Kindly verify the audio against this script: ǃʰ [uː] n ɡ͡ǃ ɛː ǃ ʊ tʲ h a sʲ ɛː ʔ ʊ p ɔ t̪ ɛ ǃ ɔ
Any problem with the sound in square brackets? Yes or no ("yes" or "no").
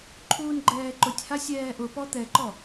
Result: no